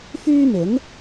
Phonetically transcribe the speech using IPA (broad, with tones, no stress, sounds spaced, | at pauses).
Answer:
f yː˥ m ɪ˨˥ ŋ